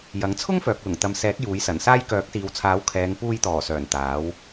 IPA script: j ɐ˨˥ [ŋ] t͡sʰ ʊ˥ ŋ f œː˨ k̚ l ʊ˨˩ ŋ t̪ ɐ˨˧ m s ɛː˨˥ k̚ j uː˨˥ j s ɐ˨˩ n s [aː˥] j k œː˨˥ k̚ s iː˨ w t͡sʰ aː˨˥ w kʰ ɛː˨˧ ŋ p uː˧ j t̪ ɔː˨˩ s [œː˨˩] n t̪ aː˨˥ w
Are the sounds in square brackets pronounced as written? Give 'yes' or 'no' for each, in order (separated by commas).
yes, yes, yes